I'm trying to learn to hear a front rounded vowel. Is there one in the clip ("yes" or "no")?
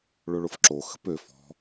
yes